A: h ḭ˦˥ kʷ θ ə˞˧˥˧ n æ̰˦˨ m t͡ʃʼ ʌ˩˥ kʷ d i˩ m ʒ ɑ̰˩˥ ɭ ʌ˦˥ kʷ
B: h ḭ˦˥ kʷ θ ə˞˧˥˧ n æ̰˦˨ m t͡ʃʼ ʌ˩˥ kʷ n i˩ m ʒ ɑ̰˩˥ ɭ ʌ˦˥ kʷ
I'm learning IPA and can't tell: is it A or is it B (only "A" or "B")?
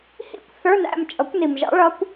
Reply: B